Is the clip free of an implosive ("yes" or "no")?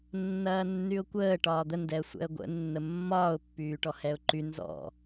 yes